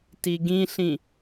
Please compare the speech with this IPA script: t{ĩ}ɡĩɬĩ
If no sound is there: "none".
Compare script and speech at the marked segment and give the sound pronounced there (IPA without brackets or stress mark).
i